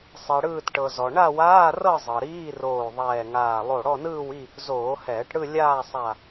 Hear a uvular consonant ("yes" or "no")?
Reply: no